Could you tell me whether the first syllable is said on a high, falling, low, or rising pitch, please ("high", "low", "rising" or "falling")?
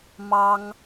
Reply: high